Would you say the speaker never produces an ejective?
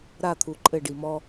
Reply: no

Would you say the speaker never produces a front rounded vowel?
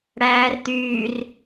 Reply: no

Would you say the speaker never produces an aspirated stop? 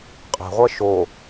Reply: yes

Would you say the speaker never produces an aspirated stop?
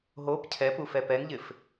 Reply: no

